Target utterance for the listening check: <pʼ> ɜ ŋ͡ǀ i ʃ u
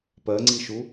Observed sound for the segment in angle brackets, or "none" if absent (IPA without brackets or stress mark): p